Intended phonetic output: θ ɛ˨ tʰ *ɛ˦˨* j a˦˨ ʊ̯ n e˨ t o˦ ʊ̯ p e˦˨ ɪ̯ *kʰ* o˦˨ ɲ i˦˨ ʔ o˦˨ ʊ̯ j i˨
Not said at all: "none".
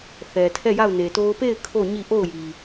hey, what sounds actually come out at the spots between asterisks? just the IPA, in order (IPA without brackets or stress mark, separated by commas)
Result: ɛ˦˨, kʰ